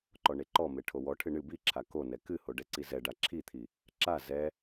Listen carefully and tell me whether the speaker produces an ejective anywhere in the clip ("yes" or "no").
no